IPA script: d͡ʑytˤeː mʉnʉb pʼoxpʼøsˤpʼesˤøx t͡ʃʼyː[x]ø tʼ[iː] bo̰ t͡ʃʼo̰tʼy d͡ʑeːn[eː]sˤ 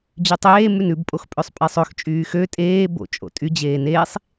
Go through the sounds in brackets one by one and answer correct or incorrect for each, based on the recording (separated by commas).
correct, incorrect, correct